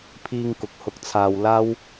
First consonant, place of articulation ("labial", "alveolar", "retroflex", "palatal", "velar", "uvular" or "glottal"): labial